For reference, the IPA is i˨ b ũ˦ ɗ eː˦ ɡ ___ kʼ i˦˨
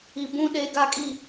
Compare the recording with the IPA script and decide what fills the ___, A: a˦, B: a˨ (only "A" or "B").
A